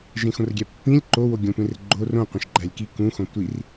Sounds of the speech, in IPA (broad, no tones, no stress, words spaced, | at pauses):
ʒẽxõrɡʲæpːĩlʲ ǃo woɡʲõtʷẽrɡ͡ǃo rõ qʷẽʃɡ͡ǃælʲki kũ xõtʷir